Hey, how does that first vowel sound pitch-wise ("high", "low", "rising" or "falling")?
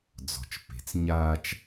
low